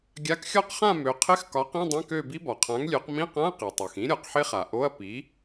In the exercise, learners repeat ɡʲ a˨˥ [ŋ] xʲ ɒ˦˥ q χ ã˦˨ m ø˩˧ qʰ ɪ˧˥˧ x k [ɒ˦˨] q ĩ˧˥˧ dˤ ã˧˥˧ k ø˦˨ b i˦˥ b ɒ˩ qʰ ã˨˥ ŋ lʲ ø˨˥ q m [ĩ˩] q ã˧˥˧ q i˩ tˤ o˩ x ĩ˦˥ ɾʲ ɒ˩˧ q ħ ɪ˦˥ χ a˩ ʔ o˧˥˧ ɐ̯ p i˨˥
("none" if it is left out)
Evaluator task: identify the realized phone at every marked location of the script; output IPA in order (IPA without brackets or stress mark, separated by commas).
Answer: k, ɒ˨˥, ĩ˧˥˧